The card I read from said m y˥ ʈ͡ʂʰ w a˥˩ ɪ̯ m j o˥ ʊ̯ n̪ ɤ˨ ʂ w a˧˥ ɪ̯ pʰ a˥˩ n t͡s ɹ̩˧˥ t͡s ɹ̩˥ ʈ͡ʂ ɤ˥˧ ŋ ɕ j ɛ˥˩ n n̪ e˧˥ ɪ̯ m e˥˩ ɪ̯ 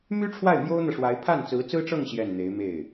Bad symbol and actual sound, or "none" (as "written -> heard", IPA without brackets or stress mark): none